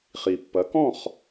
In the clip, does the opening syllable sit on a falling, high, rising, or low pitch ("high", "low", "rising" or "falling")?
low